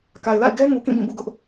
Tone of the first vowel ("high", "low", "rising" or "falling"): low